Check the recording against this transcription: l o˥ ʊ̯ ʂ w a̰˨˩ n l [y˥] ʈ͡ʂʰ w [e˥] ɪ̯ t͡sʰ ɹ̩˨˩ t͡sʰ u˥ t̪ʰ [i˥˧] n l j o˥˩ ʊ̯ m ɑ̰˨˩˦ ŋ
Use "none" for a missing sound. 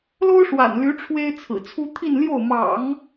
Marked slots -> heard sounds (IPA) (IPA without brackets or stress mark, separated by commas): y˧˥, e˥, i˥˧